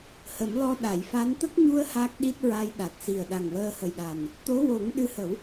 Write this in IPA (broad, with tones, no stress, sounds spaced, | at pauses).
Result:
h ə˨˩˦ m l ɔ˧ ɗ a˨˩˨ j f a˧˥ n t̪ ə˦˥ k̚ ɲ u˧ ə̯ h a˦˥ k̚ ɗ i˦˥ t̚ ɹ a˧ j ɗ a˨˩ t̚ s i˨˩ ə̯ ɗ a˨˩ ŋ w əː˧ h ə˨˩ j ɗ a˨˩ n | t̪ o˧˥ w o˨˩˦ ŋ ɗ ɨ˧˥ h ə˨˩˦ w